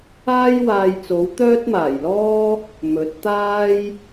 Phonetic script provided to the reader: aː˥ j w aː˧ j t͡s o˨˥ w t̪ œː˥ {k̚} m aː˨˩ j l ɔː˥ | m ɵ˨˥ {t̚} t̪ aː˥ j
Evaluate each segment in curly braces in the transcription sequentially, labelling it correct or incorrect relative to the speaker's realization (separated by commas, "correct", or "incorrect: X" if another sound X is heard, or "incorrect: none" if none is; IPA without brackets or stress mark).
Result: incorrect: t̚, correct